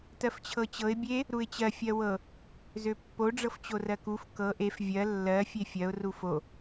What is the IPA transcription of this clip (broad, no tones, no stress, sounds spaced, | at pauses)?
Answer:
t ɜ f t͡ɕʰ ɤ t͡ɕ ɤ ɪ̯ bʲ e | ɾ u ɪ̯ t͡ɕ ɜ fʲ ɜ w ɤ | z ø pː o ɖ͡ʐ ɤ f t͡ɕ o r ɜ k u f k ɤ ʔ e f vʲ ɜ lː ɜ fʲ e fʲ ɜ ʊ̯ r u f o